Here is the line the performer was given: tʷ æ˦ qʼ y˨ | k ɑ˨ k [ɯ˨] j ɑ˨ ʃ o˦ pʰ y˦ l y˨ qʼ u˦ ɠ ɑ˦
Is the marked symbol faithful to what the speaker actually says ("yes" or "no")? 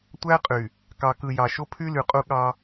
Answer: yes